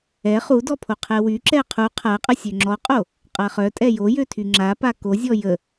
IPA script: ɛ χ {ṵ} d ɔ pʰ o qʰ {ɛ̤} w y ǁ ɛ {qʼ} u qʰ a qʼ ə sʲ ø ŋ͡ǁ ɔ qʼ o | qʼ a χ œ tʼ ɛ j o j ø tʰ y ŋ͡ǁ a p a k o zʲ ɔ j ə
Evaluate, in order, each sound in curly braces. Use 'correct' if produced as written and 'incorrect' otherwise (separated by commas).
incorrect, incorrect, incorrect